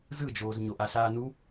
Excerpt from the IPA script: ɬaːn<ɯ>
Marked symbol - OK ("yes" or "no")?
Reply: no